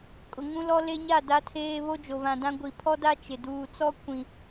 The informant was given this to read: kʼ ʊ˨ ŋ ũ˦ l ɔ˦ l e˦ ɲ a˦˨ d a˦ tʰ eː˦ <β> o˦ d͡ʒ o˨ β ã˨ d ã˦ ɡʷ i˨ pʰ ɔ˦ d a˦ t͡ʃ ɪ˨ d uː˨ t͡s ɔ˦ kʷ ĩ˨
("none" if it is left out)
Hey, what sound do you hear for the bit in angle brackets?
β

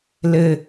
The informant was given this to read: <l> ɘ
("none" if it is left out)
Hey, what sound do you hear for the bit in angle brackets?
l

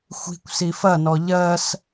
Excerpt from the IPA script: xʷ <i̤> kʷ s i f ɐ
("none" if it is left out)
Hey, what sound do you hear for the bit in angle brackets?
i̤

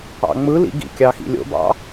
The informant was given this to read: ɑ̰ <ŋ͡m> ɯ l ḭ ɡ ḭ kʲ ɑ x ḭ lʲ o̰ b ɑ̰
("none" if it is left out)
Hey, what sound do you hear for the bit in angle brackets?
ŋ͡m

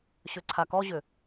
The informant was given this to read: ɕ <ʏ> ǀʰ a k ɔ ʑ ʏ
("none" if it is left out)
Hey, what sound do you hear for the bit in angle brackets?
ʏ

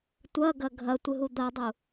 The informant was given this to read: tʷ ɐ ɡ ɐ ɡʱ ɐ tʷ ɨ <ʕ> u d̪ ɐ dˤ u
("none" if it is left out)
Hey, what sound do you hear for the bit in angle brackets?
ɦ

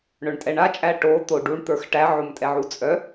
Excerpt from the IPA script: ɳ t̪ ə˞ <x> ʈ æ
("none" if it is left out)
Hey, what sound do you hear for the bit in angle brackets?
x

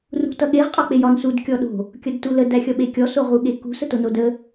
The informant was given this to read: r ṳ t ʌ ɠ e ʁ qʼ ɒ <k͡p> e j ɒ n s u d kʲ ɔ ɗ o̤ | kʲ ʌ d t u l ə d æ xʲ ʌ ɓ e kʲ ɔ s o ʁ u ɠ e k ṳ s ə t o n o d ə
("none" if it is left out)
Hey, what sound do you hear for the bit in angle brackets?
k͡p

